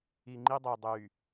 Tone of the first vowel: low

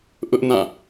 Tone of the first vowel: high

